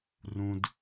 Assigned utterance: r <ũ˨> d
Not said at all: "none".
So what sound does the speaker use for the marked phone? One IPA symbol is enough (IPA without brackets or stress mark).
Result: ũ˨